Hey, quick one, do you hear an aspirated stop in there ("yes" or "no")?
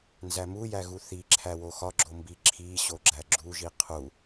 yes